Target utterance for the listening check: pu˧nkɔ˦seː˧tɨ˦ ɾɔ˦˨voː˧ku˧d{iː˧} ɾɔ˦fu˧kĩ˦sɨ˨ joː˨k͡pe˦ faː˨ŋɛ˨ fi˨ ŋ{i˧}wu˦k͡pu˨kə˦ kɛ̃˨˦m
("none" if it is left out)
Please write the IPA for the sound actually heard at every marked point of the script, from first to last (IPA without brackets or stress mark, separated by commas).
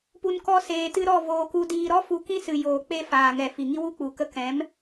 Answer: iː˧, i˦